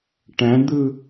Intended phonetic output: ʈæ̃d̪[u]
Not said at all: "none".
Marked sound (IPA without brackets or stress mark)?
ɯ